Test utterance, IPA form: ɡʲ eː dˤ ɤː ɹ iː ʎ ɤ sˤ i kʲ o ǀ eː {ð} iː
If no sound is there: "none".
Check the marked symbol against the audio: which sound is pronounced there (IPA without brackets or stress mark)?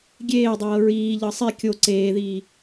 ð